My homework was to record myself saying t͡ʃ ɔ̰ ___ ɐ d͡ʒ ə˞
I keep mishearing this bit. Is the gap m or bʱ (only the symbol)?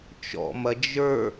m